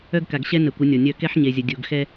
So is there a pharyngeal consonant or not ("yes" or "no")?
yes